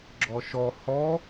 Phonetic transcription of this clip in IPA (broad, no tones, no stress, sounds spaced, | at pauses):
ɡ͡ǁ ɔ ʃ ɔ h ɔ